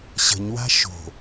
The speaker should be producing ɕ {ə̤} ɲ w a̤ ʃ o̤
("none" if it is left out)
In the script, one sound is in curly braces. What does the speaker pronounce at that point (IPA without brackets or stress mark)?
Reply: ə̤